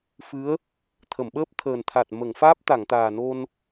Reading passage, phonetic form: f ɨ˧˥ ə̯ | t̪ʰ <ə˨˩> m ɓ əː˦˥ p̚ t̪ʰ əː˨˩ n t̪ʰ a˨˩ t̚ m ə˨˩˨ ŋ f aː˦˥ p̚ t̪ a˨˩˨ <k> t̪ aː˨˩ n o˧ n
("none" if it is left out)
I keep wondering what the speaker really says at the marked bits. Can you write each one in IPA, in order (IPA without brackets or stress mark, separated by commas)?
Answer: ə˨˩˨, ŋ